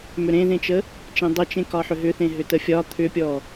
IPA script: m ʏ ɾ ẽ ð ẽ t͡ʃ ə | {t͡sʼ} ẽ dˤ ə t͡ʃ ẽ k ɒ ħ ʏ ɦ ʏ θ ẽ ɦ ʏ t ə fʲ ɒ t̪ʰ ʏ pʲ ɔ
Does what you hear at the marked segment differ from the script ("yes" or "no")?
yes